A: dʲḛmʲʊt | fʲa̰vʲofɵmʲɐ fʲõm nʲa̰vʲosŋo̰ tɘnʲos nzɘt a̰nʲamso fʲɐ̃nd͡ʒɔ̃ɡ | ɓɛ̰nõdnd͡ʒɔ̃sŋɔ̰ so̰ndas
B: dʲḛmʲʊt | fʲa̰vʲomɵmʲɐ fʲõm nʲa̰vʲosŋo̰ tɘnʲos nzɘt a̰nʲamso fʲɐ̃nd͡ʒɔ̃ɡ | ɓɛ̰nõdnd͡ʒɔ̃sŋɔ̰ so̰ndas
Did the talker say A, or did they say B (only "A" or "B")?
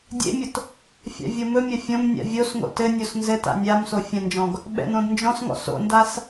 B